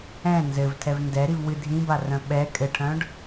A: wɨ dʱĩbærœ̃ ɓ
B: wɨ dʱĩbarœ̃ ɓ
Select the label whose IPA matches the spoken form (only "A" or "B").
B